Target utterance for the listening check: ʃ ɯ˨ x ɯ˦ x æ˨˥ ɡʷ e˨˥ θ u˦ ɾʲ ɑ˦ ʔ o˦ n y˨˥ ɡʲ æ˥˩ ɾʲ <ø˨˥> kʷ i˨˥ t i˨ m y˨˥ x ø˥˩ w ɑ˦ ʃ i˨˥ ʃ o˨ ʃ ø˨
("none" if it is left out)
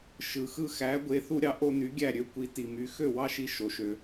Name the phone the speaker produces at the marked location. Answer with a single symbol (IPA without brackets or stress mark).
ø˦